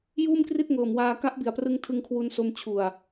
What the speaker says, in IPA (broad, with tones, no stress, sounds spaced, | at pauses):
j uː˥˩ m k r i˥˩ t̚ ŋ ɤː˨˩ m w aː˧ k a˦˥ ʔ b i˨˩ a̯ p r ɯ˧ ŋ tʰ ɯ˧ ŋ kʰ w u˧ n s o˧ m t͡ɕʰ u˨˩ a̯